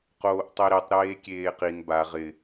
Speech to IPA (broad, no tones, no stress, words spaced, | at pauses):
qoːʔtˤiɾitˤ ɾeːkʲeːqin ba ʁɪ